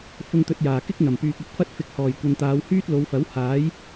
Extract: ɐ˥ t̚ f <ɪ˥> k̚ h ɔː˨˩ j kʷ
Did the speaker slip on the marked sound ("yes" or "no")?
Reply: yes